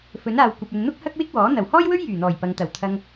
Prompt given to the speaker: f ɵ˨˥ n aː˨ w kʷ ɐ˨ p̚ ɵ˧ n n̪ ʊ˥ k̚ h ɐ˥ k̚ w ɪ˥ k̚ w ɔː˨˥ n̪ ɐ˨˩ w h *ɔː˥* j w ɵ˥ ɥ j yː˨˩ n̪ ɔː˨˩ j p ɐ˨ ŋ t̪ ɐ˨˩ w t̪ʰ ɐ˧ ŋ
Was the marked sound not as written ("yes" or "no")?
no